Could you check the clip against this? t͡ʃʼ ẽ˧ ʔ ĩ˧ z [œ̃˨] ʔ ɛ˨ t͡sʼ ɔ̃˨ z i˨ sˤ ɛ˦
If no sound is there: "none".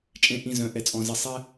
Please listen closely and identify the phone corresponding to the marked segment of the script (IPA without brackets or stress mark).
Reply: œ̃˨